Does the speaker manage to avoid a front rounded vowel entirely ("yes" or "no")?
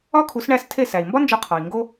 yes